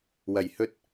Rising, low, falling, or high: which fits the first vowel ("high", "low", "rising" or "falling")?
low